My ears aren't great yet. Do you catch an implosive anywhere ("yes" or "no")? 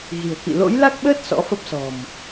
yes